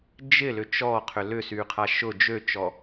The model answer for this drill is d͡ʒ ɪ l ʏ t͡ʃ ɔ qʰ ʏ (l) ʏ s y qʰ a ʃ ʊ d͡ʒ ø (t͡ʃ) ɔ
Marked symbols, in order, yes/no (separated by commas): yes, yes